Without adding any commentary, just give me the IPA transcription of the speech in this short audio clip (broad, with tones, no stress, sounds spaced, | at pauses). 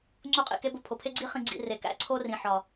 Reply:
ŋ͡ǀ u˧ qʼ ḭ˨ k e˧ b o˧ pʰ o˨ pʰ e˦ ɡ͡ǀ i˦ χ ĩ˨ ɡ͡ǀ ḭ˨ r e˨ k æ̰˦ ǀʰ o˦ r ĩ˨ ħ ɒ˨